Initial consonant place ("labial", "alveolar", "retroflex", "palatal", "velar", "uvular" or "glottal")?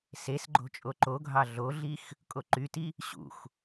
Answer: alveolar